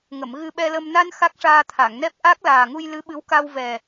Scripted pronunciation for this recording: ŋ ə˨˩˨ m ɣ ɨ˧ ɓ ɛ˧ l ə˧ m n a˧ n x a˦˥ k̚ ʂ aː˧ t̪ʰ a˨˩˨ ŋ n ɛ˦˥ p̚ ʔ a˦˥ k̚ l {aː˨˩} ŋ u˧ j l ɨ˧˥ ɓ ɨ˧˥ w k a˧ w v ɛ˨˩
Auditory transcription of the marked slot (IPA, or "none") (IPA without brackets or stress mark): aː˨˩